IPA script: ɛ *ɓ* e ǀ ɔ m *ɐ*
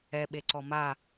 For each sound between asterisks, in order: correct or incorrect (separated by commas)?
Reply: correct, incorrect